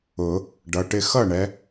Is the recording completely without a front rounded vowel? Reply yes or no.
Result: yes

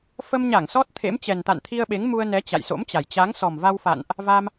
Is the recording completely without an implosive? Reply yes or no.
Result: no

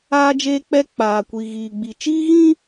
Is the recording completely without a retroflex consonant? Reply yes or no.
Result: yes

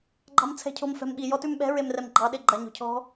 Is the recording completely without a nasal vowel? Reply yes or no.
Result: yes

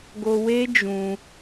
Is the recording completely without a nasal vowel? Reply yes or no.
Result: no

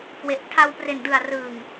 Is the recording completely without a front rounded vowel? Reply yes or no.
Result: yes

